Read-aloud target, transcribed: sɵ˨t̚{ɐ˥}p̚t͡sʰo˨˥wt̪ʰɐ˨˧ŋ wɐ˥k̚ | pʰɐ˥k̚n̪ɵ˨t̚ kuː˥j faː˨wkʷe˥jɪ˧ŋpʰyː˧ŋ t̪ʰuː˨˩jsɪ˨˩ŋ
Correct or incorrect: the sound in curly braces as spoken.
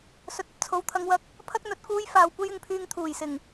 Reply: correct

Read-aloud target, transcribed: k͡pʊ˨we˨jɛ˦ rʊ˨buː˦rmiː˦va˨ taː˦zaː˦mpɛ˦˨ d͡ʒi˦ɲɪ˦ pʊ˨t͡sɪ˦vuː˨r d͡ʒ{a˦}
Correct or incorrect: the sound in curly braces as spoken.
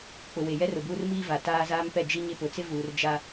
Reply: correct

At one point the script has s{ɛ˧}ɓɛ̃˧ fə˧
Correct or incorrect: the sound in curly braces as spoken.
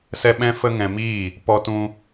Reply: correct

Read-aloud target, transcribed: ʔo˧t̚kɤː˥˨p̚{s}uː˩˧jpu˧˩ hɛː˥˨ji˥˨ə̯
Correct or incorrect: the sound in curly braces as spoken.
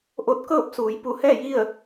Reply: correct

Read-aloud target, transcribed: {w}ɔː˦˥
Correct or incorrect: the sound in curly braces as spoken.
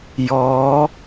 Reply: incorrect: j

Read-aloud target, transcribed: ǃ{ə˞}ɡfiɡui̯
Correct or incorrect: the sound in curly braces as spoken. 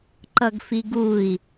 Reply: incorrect: ʌ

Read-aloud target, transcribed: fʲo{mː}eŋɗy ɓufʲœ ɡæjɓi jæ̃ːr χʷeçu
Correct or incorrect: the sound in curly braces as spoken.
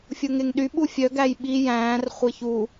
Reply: incorrect: ŋ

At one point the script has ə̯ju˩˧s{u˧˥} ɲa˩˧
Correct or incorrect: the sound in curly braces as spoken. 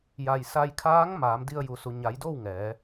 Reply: incorrect: u˩˧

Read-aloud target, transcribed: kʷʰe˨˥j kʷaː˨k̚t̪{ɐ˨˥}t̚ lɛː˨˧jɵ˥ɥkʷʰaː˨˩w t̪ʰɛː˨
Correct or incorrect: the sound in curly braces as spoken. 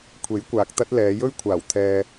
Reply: incorrect: ɐ˥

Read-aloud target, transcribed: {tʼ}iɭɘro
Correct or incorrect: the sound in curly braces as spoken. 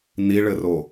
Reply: incorrect: n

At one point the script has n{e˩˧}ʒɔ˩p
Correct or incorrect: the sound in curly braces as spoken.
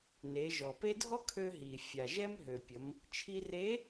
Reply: correct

